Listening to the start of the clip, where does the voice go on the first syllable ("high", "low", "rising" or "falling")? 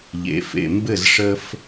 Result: low